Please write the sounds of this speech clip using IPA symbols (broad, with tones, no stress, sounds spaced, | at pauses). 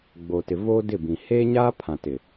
ɡ͡b o˨ t ɪ˨ v oː˦ d ɪ˦˨ b ĩ˨ h eː˦ ɲ aː˦ pʰ ã˨ t ɪ˨